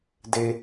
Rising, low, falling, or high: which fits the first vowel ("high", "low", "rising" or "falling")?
high